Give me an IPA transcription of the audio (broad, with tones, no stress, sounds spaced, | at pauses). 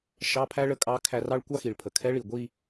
ʃ ɑ˧˥˧ pʰ æ˥ ɭ ə˧˥ kʼ ɑ˧˥ kʰ æ˧ r ɑ˥ ɭ kʷ ɑ˥ x i˩ ɭ pʰ ə˩ kʰ ɛ˧˥ ɭ i˩ ɡʷ i˥˧